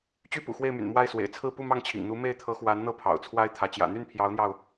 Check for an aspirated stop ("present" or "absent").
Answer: present